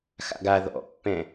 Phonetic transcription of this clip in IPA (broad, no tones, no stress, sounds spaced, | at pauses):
x a̰ ɡ a ð ɔ̰ pː ɛ̃